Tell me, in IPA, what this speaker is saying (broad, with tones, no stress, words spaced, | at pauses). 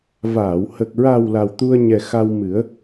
vaː˨˩˨whə˨˩k̚ ɹa˨˩w la˨˩wt̪u˧ə̯ɲɛ˨˩ xa˧wmɨ˨˩˦ə̯